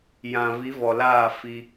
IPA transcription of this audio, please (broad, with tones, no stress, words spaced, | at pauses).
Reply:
jã˨ vi˨˦vɔ˨laː˦˨ fi˦